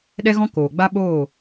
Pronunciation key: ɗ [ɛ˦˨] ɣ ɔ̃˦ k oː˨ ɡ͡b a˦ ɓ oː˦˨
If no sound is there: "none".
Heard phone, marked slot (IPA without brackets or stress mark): ɛ˦